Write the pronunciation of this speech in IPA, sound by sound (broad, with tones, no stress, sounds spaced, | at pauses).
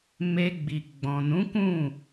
m e˦ ɡ͡b i˧ ɡ͡b ɔ̃˨ n ũ˨˦ k ũ˦˨